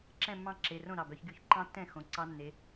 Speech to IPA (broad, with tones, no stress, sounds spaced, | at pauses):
ǁ ɛ̃˥˨ mː ɑ̃˥˨ ǁ e˩˧˩ r õ˥˨ ɾ ɑ˩˧˩ b œ˨˦ ç ɡ y˧˥˧ ç ǃ ɑ̃˦˥ tː ɛ̃˥˨ x õ˩˧˩ ǀ ɑ˦˥ nː e˨˦